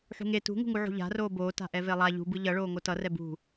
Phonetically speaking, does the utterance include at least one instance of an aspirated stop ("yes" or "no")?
no